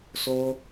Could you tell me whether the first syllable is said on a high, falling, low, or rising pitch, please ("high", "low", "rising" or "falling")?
high